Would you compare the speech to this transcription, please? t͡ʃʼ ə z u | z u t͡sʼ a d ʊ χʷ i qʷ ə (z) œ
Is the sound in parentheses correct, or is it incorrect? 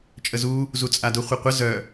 correct